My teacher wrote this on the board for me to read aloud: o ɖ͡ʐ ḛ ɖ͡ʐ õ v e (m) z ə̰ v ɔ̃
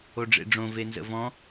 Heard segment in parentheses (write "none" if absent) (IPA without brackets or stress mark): n